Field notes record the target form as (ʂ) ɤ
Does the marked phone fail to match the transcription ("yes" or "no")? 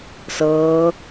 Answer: yes